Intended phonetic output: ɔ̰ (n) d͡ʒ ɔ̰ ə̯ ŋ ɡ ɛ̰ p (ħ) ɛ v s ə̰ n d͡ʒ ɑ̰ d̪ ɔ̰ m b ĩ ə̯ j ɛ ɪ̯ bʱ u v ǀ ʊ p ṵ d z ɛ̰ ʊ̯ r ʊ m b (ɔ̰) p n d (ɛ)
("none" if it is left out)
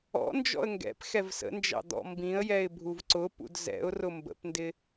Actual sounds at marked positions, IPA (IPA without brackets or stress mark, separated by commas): n, x, ə̰, ɪ